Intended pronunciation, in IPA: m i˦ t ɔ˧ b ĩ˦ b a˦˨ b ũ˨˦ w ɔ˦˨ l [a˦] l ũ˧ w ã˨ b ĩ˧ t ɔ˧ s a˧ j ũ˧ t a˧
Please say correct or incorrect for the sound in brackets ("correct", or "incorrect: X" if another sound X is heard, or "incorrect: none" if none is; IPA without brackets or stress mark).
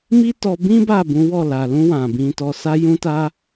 incorrect: a˨